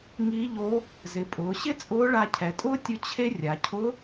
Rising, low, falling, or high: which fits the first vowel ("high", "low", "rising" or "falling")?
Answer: rising